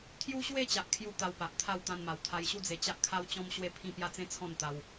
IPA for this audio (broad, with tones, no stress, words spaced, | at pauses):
t̪ʰju˦ɕwe˥˧t͡ɕa˨ʔ kʰju˦t̪a˧wpa˨ʔt̪ʰa˥˧w t̪ã˧nma˨˩wt̪ʰa˧jɕu˥˧ d͡ze˧t͡ɕa˦ʔkʰa˦wt͡ɕɔ̃˦m ɕwe˥˧pʰĩ˥˧pja˥˧t͡sẽ˥˧ t͡sʰɔ̃˥˧nt̪a˧w